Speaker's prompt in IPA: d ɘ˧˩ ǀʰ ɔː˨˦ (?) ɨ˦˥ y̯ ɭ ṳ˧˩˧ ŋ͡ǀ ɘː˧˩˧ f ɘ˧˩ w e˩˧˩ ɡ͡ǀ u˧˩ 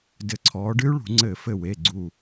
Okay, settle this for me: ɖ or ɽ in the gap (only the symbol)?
ɖ